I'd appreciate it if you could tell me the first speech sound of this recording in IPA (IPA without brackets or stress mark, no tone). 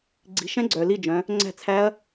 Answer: ɡ͡ǀ